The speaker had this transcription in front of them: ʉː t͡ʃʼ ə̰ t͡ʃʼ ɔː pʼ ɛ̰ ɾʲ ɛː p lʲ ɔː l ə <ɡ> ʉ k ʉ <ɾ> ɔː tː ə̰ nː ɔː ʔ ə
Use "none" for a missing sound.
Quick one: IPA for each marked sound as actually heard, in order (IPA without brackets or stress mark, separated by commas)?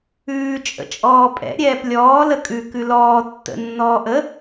kʼ, l